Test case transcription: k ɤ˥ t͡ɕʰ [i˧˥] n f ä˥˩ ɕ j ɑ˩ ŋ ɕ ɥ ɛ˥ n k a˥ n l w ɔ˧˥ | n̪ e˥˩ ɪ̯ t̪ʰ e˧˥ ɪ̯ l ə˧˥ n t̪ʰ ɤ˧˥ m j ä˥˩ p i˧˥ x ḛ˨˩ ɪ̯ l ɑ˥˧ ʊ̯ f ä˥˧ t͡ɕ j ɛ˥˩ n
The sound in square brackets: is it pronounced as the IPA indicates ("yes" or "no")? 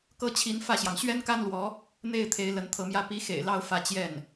yes